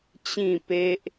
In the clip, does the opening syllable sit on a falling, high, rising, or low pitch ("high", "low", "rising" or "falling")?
falling